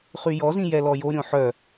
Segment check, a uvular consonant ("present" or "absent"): present